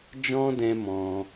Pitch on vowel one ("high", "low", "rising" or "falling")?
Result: high